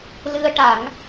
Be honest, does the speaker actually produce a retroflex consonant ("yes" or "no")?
yes